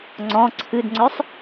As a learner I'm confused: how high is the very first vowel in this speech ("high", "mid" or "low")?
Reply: mid